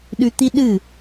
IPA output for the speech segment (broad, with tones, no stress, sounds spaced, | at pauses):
ɗ ʉ˧ t̪ i˦ ɗ ɨ˦˨